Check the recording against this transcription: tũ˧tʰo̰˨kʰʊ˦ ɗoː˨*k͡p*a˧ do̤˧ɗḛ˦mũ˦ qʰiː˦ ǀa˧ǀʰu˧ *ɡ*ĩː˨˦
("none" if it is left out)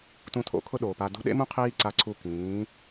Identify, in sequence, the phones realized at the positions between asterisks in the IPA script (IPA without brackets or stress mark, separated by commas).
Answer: p, k